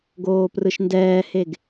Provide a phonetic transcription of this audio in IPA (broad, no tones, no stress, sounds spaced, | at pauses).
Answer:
ɡ oː p r ɯ ʃ n d ɛː h e ɡ